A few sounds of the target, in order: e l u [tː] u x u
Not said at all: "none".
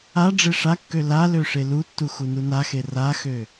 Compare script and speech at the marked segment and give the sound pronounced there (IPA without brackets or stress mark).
tː